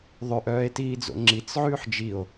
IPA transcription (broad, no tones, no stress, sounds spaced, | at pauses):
ðˤ ø ʔ œː e̯ t iː d͡z o̰ ŋ͡ǁ i t͡s ʕ ʉː ħ d͡ʒ i o̯